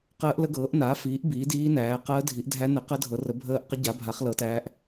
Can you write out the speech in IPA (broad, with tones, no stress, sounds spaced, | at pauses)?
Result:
q əː˧˥ ʔ l ə˧˥ ɡ ɤː˩˥ ʔ n aː˩˥ f iː˩˥ ʔ b iː˩˥ d iː˧˥ n æː˩˥ q əː˧˥ dʱ i˩˥ ʔ dʱ æ˧˥ n ə˩˥ q ə˧˥ dʱ ɤ˩˥ r ə˩˥ bʱ əː˧˥ ʔ q ə˧˥ ɟ a˩˥ bʱ a˩˥ χ l ɤ˩˥ t æː˧˥ ʔ